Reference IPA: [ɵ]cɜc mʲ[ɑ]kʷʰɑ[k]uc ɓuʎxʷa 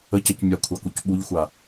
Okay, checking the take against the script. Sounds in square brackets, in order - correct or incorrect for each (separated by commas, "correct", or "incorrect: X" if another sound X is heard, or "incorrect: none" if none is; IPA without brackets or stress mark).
incorrect: ə, incorrect: a, correct